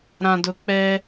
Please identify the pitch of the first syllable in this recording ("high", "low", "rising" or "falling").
low